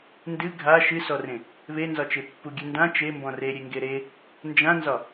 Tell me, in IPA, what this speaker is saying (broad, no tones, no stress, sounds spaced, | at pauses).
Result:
n d ɨ ɡʱ a ʃ ɨ s ɔ r ẽ | β e n z ɒ t͡ʃ e pː u ɡʲ ɨ n d ã t͡ʃ e m b ɔ̃ r e ɾʲ e ŋ ɡ e ɾ e | n d͡ʒ ã n z ɒ